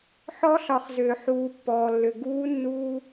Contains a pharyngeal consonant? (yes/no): yes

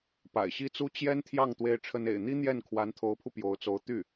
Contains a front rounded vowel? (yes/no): yes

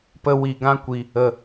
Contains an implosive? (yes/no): no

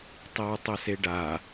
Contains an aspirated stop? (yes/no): no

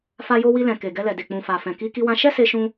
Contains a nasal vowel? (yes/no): yes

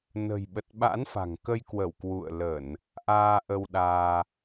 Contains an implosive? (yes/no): yes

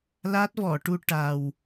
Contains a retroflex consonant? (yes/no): yes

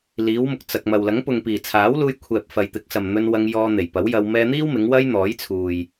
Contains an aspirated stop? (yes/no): yes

